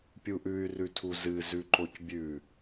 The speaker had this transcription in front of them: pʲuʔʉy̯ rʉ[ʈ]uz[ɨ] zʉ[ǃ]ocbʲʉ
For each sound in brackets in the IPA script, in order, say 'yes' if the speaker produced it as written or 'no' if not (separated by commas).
no, yes, yes